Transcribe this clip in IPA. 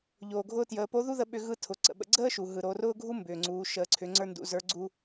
ʎ oː˩ ɡʱ ʊː˧ t j əː˩˧ p o˧˥ ð u˥ ð ə˧ ɓ ʏ˧ ɣ ɯ˧˥ tʰ ʊ˩˧ ǀ ə̰˩ ɓ ə̰˧ ɡ͡ǀ əː˥ ʃ u˩ ɦ ɯ˩ ɾ o˩˧ r ʊː˥ ɡʱ u˥ m b ʏː˩ ŋ͡ǀ uː˩˧ ʃ əː˩˧ ǀʰ ʏ˩˧ ŋ͡ǀ ə˞˧ n d ṵ˩˧ z ə˞˧˥ ɡ͡ǀ u˧

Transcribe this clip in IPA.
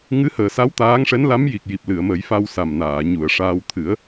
ŋ ɨ˧˥ h əː˨˩ s a˧˥ w t̪ aː˧˥ ŋ ʂ ɛ˧˥ n l a˧˥ m j i˨˩ k̚ j i˨˩ p̚ l ɨ˨˩˨ ə̯ m ə˨˩˦ j f a˧ w s a˨˩ m n aː˨˩˨ ɲ u˨˩˨ ə̯ ʂ aː˧ w t̪ʰ ɨ˨˩˦ ə̯

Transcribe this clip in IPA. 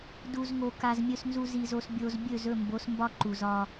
d u˨ z ŋ o˨ k a˨ z mʲ ɵ˨ s n z u˨ z i˨ z o˨ s bʲ o˨ z bʲ ɵ˦˨ z ɵ˦˨ m b o˨˦ s m b ɒ˦ ǃ u˨ z ɒ˦

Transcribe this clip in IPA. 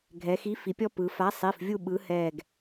ɡʱ ɛ˩˧ x i˨˥ f i˩˧ pʲ ɔ˦ p ɯ˩˧ f a˨˥ sˤ i˩˧˩ f vʲ u˦˨ ɓ ɯ˨˥ h ɛ˦˨ ɡ

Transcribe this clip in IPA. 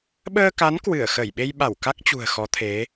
ɓ əː˧ k a˨˦ n k w ɨ˧˩ ə̯ x ə˧˩ j ɓ e˧ j ɓ a˧˩ w k a˦˥ k̚ t͡ɕ ṳ˨˩ ə̯ x ɔ˨˦ t̪ʰ e˨˦

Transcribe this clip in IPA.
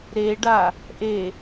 ɾ e ɖ a | ʔ e

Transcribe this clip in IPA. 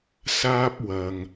s aː˥ p̚ w ɐ˨ ŋ

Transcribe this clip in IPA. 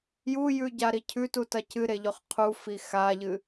j u j ʉ ɟ a ɾ i cʰ ʉ t u t ɐ c ɨ ɾ e ʎ ɵ χ qʰ u f i x a ʎ ɨ

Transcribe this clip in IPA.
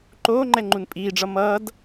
ǃ oː ŋ͡ǃ ɛ ŋ͡ǃ u n pʼ iː ɖ͡ʐ ʌ m ʌː d

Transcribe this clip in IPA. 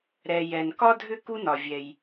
ɾ ɛ˨ j ɛ˨ n k ɒ˥ dʱ ʏ˥˧ k u˥ n ɒ˨ vʲ ɛ˨ j

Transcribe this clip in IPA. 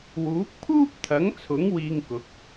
w uː˨˥ k̚ pʰ uː˥ p̚ t̪ʰ ɐ˨˥ ŋ t͡sʰ ʊ˨˥ ŋ w iː˧ ŋ k ʊ˨˥ k̚

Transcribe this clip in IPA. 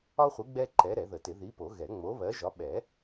ɒ˥ χʷ i˨˥ ɡ͡b ɛ˥ ǃ ɛ˨˥ ɾ ɛ˨˩˦ ð ə˨˩˦ t ɪ˨˩˦ ð i˨˥ p o˨˩˦ ɣ ɛ˨˩˦ ŋ͡m o˨˥ β ɜ˨˥ ʒ ɒ˨˥ ɓ ɛ˨˩˦

